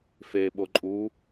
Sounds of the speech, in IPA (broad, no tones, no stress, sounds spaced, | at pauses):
f e ɓ o ǃʼ u